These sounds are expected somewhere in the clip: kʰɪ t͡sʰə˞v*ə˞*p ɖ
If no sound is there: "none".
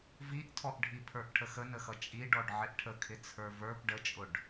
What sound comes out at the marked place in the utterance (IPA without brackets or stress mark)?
ə˞